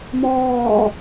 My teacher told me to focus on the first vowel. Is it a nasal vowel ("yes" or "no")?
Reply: no